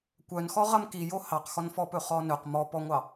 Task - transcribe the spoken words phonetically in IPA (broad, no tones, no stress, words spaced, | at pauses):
kʷœnxɔ ʁɐmkijo hɑqxɔnfɔpɵ χɔnɵq mɔpɔŋʷɑ